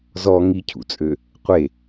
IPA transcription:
z ɔ ŋ i cʰ ṵ t͡sʼ ø | qʷ e

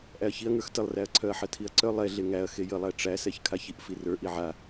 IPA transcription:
ʔ æ ɐ̯ ç i ɐ̯ ŋ ə˞ x t ə lˠ r æ ɐ̯ ǀʰ œ ɐ̯ ħ ɜ tʰ i ɐ̯ ǀ œ lˠ ɛ ɮ e ŋ æ ɐ̯ x e j ə lˠ æ ʈ͡ʂ æ s ɛ ç kʰ a ç i ʔ f i r ə˞ ʔ i ʕ a

